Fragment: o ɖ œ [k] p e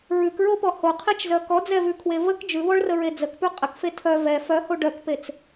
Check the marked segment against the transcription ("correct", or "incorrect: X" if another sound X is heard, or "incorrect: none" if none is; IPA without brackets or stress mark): correct